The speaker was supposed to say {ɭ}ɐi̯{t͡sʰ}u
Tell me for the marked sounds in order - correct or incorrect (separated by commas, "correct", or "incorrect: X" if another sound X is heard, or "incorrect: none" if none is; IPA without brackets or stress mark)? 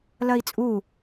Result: incorrect: l, incorrect: t͡sʼ